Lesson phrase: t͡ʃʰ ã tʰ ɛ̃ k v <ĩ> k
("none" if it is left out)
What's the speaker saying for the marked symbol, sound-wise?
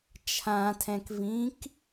ĩ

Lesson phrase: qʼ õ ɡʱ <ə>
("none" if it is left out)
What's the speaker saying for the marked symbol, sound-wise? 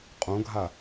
a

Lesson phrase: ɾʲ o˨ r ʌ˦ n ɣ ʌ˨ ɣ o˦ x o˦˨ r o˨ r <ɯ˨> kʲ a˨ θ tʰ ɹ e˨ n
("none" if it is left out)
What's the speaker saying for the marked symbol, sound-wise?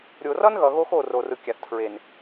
ɯ˨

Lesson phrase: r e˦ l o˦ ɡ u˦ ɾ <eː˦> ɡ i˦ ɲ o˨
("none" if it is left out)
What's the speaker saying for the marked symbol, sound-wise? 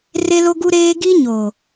eː˦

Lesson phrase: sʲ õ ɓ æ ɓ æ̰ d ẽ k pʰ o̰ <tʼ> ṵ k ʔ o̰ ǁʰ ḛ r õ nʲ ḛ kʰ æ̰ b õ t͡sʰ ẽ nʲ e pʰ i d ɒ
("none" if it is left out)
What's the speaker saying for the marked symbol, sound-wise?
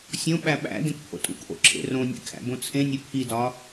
tʼ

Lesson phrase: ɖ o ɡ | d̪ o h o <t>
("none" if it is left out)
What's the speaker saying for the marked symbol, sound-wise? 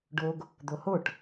ʈ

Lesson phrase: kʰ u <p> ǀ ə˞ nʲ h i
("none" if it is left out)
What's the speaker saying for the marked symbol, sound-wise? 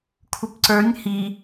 p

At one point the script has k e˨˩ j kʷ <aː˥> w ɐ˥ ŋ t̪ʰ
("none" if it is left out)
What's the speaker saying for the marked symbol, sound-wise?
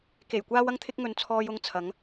aː˥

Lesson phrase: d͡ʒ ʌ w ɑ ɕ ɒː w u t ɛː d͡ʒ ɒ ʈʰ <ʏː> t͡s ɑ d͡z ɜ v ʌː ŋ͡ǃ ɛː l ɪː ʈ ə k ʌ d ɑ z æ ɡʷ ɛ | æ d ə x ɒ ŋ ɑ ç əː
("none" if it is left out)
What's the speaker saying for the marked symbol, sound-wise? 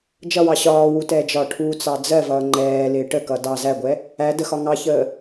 uː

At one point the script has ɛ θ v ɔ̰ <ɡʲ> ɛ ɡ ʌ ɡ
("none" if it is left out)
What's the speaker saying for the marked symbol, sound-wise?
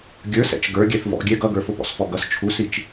ɡʲ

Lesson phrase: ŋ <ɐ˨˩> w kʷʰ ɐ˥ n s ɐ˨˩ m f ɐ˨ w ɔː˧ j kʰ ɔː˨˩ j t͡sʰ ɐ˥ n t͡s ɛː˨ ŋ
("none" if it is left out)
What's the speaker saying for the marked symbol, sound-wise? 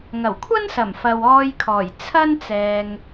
ɐ˨˩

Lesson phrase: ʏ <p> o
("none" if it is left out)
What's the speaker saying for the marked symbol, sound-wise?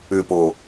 p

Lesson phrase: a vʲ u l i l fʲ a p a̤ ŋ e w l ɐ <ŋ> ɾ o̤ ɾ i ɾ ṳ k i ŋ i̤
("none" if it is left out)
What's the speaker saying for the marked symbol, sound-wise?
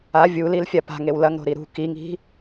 ŋ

